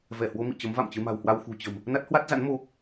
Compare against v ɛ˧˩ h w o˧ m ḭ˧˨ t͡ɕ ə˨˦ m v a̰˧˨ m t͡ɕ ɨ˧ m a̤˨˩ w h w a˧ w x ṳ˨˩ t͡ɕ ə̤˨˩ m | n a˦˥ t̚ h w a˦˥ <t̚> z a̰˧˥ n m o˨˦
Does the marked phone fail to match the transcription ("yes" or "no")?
no